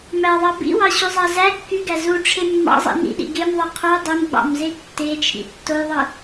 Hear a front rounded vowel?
yes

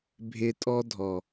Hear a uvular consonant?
no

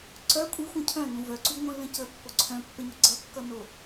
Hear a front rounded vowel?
yes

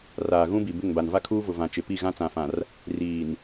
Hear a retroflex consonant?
no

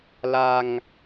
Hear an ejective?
no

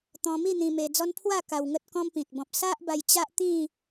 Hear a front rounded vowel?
no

